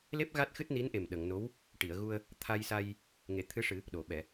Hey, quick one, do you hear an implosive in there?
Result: yes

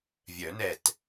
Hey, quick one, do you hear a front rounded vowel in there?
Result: yes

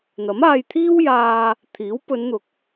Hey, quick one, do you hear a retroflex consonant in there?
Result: no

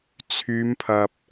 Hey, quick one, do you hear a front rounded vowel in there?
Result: yes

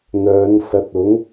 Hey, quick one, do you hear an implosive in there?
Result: no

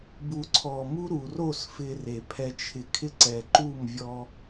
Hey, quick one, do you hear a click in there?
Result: yes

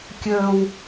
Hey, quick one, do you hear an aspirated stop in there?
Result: no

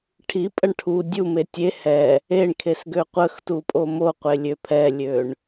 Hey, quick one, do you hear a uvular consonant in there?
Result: yes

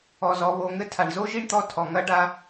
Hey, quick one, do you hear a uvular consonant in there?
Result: no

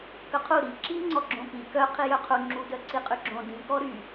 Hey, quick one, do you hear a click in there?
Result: yes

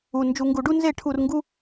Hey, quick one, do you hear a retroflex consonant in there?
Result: yes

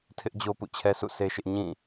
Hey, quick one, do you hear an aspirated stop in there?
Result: yes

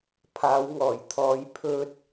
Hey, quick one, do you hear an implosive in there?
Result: no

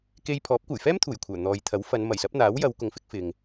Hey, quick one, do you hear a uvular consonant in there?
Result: no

